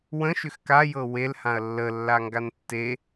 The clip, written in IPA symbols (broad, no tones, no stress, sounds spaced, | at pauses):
w ə̃ ʃ ʏ x k a j ɤ w e l h ã ɐ̯ lː ə lː a ŋ ɡ a n tː e